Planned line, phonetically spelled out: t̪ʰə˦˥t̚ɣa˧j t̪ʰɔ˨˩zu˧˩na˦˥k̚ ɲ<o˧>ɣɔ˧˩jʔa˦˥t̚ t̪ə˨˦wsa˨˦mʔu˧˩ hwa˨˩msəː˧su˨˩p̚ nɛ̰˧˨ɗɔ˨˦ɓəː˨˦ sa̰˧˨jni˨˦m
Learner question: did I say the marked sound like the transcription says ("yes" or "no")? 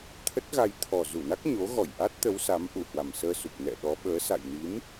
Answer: no